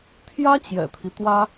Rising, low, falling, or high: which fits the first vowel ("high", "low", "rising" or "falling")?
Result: high